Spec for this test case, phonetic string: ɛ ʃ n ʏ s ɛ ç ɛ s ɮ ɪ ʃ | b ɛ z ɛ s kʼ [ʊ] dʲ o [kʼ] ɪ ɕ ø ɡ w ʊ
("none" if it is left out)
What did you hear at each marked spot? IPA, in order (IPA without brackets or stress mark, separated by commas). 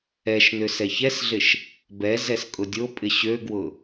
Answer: ʊ, pʼ